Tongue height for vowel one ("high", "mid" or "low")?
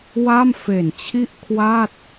low